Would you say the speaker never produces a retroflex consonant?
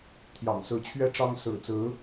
no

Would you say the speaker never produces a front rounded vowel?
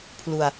yes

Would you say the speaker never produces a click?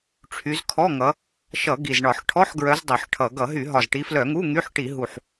yes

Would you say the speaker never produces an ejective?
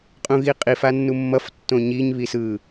no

